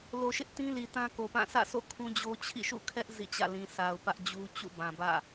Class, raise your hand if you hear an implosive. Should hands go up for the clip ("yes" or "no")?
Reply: no